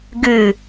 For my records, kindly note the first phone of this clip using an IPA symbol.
ɡ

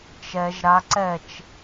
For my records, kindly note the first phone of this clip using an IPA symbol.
t͡ʃ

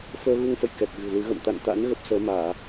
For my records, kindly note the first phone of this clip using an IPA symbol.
f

